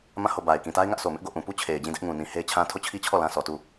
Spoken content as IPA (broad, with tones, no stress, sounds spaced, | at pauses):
m ã˦˨ h o˦˨ b a˨ ɪ̯ k ĩ˨ t a˦ ɪ̯ ŋ ä˦ ʔ sʰ o˨ m ɪ˦ ʔ ɡ o˨ ʔ ũ˨ p u˦ t͡ɕʰ e˨ ɪ̯ d͡ʑ ĩ˦˨ d ɪ˦ ʔ ŋ ũ˨ n ĩ˨ h e˦ ɪ̯ t͡ɕʰ ã˦ tʰ o˦˨ t͡ɕʰ i˦ t͡ɕʰ ɔ˦˨ l ã˦ sʰ ɔ˨ t u˦˨